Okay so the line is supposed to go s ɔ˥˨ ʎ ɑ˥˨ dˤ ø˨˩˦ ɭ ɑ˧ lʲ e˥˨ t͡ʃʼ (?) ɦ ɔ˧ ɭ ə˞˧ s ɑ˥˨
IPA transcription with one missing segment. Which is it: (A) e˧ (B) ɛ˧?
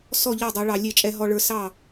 B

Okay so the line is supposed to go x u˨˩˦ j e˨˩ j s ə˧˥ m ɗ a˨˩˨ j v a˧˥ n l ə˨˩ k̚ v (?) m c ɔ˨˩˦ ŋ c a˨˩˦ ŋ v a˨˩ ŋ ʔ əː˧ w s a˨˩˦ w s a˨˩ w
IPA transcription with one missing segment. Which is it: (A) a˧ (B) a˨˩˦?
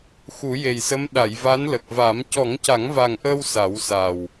B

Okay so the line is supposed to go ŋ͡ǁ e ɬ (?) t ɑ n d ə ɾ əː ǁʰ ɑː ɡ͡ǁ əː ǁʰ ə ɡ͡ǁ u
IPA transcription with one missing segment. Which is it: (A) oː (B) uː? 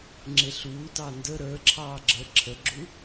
B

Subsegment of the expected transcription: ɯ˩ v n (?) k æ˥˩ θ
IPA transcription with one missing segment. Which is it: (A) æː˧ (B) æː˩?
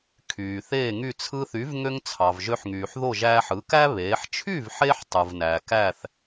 B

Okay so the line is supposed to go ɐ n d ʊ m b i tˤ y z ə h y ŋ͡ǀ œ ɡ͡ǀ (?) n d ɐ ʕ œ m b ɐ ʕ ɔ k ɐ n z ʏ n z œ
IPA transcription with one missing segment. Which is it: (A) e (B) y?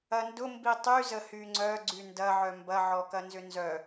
B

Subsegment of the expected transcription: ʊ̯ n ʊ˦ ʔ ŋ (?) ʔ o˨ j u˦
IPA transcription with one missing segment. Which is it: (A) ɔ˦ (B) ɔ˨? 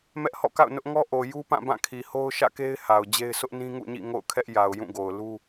A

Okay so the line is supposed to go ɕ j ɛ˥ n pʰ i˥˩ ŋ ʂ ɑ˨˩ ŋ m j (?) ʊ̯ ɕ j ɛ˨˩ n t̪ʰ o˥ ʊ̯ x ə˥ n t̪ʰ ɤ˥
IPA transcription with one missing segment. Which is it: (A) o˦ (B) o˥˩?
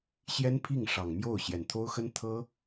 B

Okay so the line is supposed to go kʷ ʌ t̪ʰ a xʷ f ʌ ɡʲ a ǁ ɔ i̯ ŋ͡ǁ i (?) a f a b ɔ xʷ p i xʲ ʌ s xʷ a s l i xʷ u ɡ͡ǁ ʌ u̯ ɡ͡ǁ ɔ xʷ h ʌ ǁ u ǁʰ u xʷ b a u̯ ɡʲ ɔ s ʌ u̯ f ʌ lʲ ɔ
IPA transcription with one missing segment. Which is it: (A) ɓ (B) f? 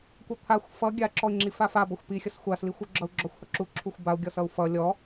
B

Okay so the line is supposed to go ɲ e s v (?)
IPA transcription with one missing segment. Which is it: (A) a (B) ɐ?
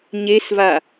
A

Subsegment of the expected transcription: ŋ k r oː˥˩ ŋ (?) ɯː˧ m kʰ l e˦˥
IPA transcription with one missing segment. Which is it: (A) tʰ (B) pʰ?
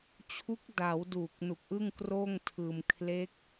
A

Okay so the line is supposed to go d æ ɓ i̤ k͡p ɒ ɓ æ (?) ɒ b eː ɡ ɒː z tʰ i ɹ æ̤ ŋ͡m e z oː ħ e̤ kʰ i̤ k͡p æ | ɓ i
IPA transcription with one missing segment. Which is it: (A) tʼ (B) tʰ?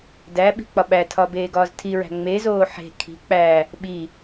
B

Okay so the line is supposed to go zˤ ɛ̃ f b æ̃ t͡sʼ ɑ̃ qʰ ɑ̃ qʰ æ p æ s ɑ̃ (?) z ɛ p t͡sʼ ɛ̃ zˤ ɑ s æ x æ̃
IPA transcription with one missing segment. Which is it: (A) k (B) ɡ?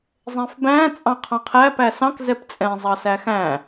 A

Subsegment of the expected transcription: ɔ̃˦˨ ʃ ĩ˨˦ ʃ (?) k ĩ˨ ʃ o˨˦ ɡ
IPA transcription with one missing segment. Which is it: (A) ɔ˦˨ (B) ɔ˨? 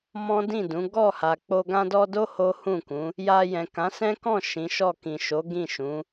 A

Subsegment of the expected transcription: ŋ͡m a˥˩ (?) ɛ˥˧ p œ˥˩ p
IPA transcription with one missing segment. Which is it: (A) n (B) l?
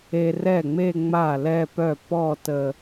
B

